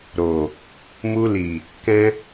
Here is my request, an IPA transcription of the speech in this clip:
ɾo˨ | mu˧li˨ | kɛ̃˧

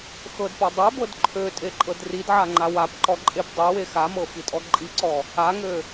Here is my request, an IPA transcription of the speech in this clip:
xɤdpɔ dˤebɤd ǃʰøtʼeǃʼɤd ridʕaŋ͡ǃa wapǃɔǃʼep dˤewe xamɤfitʼɔ ǃʼiǀɔ | aŋø

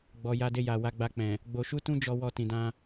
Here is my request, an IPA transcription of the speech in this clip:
ɡ͡bɔ˨ ja˧de˧ja˨ wa˨˦ɡ͡ba˧k͡pɛ̃˨ | ɡ͡bo˧ʃu˦tũ˦d͡ʒɔ˧ wɔ˧tĩ˨dã˧

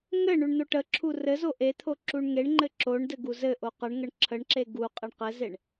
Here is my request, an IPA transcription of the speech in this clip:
ŋɘ ɳuɳn̪oʈəǁʰu rɘzo ʔet̪ʰo ǁuɳŋeɳŋ͡ǃɘ ǁoɳ dɘɡuzɘʔo qəɳŋəɳ ǁʰəɳǁe ɡu qʼeɳqɘzeɳ

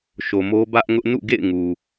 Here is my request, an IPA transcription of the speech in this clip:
ʃo˨mo˦ bä˦ʔŋʊ˦ʔ nṵ˦˨ɡḛ˦˨ɪ̯ ŋu˨

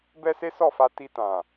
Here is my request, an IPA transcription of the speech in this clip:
bɛ˦se˦sɔ˦˨fa˧ ti˧tã˨

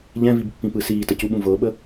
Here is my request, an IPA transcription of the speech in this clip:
ʎɛ̃vibpːĩpɯ siːtəcuɓũ vɤɓə

